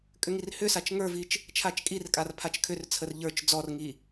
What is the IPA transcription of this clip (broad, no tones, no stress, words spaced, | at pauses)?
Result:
kʼʏŋirhʏsat͡ʃ ŋə˞vit͡ʃ | t͡ʃʰat͡ʃkʼirkʼar pʰat͡ʃkʰʏrt͡sʰər ʎə˞t͡ʃ d͡zɔrŋi